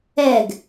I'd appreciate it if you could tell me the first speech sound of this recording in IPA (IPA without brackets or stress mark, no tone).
ɛ